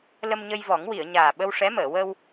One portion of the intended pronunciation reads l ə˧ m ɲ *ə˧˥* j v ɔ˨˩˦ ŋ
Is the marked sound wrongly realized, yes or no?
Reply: yes